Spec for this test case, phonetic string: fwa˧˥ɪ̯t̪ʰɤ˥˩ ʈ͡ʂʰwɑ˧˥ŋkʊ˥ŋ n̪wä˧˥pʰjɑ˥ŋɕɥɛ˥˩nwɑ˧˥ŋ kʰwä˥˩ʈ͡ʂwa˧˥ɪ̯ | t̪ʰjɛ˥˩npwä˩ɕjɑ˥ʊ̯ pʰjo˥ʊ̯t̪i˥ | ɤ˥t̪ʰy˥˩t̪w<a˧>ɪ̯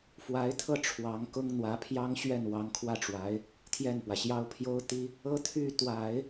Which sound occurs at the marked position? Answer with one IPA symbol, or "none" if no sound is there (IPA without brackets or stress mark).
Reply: a˨˩˦